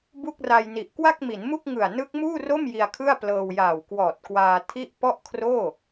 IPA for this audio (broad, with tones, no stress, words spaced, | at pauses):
bu˥˩k̚ra˧jni˨˩ʔ kwa˥˩k̚mi˩˦nmu˥˩k̚ ŋɯ˨˩a̯ nɯ˦˥k̚ muː˥˩ro˥˩m ji˧a̯kʰɯ˥˩a̯ plɤː˧wjaː˨˩w kwɔː˨˩t̚kwaː˧ tʰi˥˩ʔ pɔ˥˩ʔkʰroː˥˩